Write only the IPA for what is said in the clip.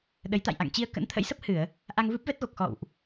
ɗə˨˦j t̪a̰˧˨jʔa̰˧˨ŋt͡ɕi˧ə̯ kə̰˧˥nt̪ʰə̰˧˥jsə˦˥p̚ hɨ˧˩˨ə̯ | ʔa˧ŋvɨ˦˥p̚vɛ˦˥t̚ɣo˨˩k̚ xɔ̰˧˨wʔ

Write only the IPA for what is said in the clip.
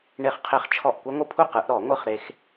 ɳe˦˥χqʰe˦˥χt͡ʃʰɔ˥˩ʔ kʷɛ˦˥ŋʷɯ˦˥pʰu˥˧ qɯ˨˦ʔɾɔ˨˩˦ŋʷɯ˥˧χ ɾe˦˥x

